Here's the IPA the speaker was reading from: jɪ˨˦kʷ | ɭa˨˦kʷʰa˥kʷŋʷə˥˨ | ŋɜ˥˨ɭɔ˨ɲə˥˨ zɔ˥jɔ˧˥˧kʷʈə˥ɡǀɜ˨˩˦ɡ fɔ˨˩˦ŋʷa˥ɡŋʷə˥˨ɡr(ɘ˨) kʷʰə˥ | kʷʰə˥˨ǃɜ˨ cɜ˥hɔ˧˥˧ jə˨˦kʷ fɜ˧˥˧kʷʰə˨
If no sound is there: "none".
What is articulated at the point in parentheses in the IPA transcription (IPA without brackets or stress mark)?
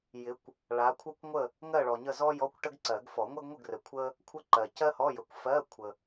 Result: ɘ˨